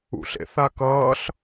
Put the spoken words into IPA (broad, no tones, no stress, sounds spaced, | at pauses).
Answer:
ṵ ɬ ḛ θ a k ʌː ɬ